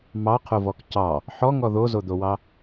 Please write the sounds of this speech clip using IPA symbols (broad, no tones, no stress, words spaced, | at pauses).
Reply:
mɑqʰovɔk cɑ | ħɔŋɔ ðozod̪owɑ